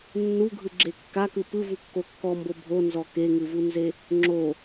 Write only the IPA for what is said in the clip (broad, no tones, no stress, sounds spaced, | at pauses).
nː u ɡʱ ɯ ɡ͡ǁ e kː a k ɯ p ɯ v u kː o kː ɔ m b o bʱ o n z ɔ k e ŋ ɯ v u n z e | ŋ͡ǁ o